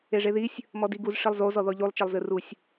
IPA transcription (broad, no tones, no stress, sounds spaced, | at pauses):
e ʐ e ð i sʲ | m ɔ d i ɡ u z ʂ i lˠ z o z ɔ ð ɔ ʎ u lˠ t͡ʃ e lˠ z ɨ r u sʲ